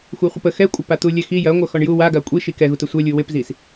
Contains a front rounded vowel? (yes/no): yes